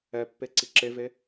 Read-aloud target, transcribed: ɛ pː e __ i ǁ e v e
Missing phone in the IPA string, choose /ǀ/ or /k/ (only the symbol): ǀ